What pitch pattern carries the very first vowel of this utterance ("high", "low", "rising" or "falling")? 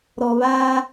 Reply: low